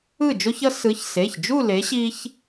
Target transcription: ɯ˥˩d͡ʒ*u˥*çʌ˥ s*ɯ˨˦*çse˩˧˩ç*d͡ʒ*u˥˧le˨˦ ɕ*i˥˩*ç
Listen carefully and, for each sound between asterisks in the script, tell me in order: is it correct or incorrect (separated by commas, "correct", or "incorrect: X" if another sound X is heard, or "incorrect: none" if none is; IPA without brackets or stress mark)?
incorrect: o˥, correct, correct, incorrect: i˥